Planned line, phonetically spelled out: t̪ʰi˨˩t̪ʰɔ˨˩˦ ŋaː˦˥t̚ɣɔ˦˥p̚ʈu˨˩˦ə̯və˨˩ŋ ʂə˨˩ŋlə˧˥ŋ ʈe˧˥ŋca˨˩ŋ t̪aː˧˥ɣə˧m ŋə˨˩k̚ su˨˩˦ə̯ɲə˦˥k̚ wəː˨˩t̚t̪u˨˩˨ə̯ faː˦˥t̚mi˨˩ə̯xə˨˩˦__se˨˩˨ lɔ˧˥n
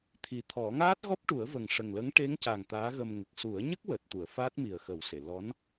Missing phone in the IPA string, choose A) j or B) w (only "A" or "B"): B